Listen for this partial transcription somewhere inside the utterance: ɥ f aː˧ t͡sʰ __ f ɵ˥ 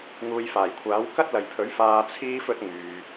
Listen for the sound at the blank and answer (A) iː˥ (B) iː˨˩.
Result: A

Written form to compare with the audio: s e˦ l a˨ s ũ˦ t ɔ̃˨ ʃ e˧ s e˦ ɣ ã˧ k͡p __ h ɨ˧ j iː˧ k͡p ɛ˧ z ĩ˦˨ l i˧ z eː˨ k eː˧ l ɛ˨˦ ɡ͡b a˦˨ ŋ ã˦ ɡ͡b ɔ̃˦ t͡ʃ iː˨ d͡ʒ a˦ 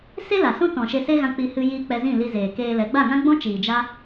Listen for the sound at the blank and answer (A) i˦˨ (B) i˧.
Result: B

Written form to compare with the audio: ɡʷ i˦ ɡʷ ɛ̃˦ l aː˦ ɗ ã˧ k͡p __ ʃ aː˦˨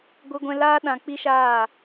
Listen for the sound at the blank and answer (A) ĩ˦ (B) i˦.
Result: B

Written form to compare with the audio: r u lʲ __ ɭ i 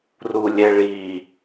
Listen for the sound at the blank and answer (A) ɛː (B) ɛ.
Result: B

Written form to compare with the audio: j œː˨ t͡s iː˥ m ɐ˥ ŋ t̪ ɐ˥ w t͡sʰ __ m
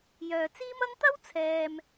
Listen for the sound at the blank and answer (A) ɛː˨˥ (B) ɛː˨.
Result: B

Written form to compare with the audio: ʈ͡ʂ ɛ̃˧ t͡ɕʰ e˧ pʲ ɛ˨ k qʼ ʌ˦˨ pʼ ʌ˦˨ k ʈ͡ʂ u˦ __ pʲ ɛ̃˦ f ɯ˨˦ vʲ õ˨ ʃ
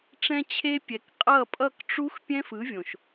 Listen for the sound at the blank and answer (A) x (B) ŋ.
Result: A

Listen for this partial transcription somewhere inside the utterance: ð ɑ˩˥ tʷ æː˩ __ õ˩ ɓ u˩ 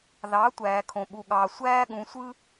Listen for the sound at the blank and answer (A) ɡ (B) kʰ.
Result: B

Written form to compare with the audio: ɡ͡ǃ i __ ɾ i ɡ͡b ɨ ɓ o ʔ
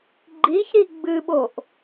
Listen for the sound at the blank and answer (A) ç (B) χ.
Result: A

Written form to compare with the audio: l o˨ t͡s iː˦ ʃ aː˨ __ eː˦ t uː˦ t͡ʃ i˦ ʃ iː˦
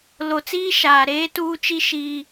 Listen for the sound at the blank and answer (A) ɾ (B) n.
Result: A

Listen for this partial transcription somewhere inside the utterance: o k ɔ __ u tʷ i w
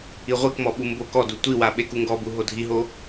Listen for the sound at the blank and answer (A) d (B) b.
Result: A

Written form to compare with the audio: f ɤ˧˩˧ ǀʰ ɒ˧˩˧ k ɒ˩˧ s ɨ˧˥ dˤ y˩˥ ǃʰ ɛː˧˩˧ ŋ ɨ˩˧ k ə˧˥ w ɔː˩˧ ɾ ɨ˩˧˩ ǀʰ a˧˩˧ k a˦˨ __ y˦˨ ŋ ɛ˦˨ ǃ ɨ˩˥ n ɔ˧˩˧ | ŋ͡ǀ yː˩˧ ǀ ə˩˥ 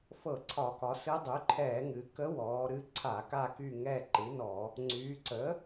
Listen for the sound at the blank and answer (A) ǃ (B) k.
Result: B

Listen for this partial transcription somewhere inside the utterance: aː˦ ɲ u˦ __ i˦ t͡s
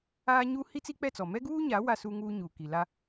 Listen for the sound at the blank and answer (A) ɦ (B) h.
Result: B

